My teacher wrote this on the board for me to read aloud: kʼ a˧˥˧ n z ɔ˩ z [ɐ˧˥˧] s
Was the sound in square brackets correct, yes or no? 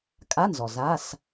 no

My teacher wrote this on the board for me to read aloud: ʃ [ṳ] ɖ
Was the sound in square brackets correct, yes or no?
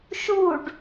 no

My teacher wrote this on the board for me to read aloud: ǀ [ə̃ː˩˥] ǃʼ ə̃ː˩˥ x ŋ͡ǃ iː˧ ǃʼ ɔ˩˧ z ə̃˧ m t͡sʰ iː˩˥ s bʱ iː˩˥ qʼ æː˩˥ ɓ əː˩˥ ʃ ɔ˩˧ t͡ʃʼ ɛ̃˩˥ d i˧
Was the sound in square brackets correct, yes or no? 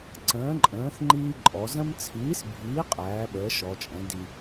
yes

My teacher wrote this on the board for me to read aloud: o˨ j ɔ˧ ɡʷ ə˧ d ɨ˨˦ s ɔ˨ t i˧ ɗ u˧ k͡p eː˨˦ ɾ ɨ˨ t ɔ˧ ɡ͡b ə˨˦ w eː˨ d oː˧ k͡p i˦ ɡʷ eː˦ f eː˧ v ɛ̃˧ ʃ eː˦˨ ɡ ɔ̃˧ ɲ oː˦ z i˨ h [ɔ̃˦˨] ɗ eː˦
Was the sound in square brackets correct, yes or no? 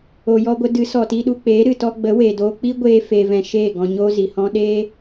no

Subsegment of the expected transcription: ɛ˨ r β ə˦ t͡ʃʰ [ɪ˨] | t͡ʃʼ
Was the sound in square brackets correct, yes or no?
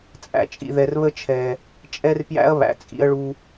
no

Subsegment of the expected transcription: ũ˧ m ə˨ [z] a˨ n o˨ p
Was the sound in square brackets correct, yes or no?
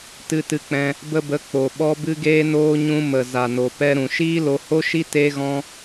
yes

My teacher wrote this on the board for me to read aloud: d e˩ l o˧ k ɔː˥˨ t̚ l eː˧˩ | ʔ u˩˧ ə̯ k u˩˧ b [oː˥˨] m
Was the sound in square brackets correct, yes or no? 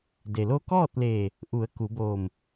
no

